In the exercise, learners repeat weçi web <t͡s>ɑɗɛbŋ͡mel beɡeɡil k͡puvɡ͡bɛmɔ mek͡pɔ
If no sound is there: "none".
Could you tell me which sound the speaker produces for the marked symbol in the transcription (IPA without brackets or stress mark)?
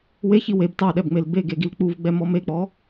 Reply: t